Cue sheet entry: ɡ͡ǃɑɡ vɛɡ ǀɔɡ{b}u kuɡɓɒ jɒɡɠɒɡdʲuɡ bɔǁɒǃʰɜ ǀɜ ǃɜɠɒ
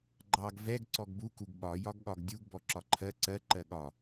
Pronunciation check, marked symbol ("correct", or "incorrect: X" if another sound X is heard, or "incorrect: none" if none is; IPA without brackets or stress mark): correct